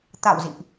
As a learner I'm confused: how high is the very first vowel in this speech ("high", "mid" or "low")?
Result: low